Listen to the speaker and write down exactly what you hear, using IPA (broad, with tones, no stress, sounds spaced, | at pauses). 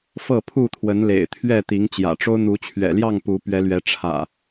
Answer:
f ɤ˥˨ pʰ u˥˨ t̪ʰ w ə˨˦ n l ḛ˨˩ ɪ̯ t̪ʰ ɥ ɛ˥˨ t̪ i˨˦ ŋ t͡ɕ j ä̰˨˩ ʈ͡ʂ o˦ ʊ̯ n̪ u˨˦ t͡ɕʰ ɥ ɛ̰˨˩ l j ɑ˥˨ ŋ p u˨˦ p ɥ ɛ˨˦ l ɥ ɛ˨˦ ʈ͡ʂʰ ä̰˨˩